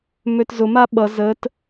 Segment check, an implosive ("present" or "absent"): present